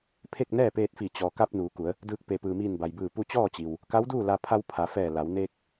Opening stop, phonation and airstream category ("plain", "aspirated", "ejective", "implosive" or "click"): aspirated